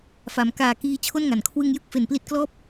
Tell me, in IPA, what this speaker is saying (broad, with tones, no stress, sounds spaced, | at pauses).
f a˩˦ m k aː˨˩ k iː˧ t͡ɕʰ o˥˩ n ŋ a˩˦ n kʰ w ɯ˧ ŋ j ɯ˥˩ k̚ f e˩˦ n p l i˦˥ t̚ k l ɔː˥˩ p̚